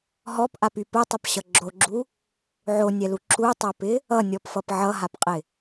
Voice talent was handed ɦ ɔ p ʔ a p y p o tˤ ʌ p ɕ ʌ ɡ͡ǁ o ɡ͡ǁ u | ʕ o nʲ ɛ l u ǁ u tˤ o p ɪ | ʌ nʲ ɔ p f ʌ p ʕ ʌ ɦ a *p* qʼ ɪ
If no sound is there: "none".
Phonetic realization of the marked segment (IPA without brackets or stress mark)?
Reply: p